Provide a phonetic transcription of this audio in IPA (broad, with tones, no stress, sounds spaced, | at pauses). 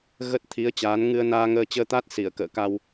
ɣ ə˦˥ t̚ t̪ʰ i˨˦ ə̯ t͡ɕ aː˨˦ n ŋ ɨ˧ ə̯ n aː˧ ŋ əː˧ t͡ɕ əː˧ t̪ a˦˥ t̚ s i˧˩ ə̯ k ə̰ː˧˨ k a˧ w